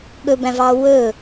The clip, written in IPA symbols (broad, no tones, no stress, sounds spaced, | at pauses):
ɠ ɵ b æ̃ v ɑ w ɵ